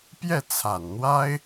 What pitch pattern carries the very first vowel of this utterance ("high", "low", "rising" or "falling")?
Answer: falling